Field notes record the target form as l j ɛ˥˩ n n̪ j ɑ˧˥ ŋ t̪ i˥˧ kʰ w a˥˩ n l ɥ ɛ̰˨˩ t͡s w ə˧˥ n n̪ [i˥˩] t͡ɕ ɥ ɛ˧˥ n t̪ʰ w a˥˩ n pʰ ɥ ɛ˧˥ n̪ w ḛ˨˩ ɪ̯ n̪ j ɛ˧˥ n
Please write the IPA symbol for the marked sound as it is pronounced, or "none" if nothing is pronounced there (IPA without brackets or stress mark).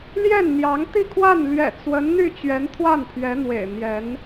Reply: y˥˩